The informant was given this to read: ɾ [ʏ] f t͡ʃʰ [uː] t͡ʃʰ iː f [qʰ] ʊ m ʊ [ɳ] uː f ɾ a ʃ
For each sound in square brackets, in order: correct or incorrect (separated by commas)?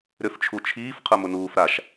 correct, incorrect, correct, incorrect